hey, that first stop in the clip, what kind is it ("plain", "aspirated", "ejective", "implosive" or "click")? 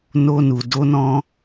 plain